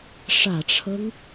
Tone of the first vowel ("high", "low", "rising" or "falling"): low